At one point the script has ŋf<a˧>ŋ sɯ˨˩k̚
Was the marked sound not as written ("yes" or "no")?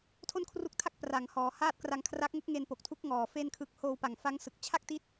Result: yes